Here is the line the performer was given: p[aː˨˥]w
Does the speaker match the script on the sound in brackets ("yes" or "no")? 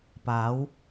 no